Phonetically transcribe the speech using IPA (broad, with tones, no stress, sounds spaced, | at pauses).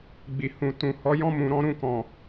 ɡ͡b i˨ h ũ˨ t ũ˨ h ɔ˨˦ j ɔ̃˦ m ũ˧ ɾ ɔ̃˦ ɾ ũ˦˨ k ɔ̃˨